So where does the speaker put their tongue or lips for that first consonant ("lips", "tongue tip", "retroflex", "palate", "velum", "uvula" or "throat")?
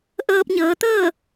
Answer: throat